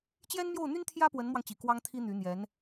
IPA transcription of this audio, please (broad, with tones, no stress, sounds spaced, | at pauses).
t͡ɕ j ɛ˥ n m j o˥˩ ʊ̯ n̪ y˥ n t̪ʰ j ä˥ p w ə˧˥ n m w ɑ˧ ŋ t͡ɕ i˨˩ k w ɑ˥ ŋ t̪ʰ i˥ n̪ y˧˥ n̪ j ɛ˧˥ n